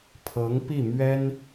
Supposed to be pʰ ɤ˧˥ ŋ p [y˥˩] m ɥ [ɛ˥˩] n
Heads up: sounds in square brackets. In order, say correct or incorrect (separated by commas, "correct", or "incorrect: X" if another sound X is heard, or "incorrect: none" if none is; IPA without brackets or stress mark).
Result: incorrect: i˥˩, incorrect: ɛ˥